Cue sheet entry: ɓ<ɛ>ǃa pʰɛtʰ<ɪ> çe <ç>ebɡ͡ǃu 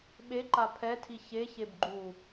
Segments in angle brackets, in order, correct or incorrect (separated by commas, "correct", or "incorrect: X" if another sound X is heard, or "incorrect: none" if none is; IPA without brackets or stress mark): incorrect: e, incorrect: i, correct